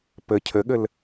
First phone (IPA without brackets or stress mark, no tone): p